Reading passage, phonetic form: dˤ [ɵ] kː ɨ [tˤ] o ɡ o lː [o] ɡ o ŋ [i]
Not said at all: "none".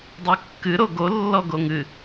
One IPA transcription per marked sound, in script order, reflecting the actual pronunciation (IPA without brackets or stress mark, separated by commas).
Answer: o, ɾ, ɔ, ɨ